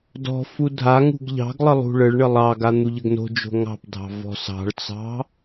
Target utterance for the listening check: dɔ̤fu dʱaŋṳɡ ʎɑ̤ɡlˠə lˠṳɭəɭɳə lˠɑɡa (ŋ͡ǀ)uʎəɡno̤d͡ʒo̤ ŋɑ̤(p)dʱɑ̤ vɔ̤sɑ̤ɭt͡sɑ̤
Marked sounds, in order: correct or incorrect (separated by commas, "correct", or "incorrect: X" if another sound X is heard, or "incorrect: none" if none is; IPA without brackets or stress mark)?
incorrect: n̪, correct